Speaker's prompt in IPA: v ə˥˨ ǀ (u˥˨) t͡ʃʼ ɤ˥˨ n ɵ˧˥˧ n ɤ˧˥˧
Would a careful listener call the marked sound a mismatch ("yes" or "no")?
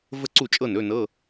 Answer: no